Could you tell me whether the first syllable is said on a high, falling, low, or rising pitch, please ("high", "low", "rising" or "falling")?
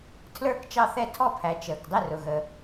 falling